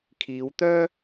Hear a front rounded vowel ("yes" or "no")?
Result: yes